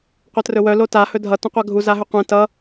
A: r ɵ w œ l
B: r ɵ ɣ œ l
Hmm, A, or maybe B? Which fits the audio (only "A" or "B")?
A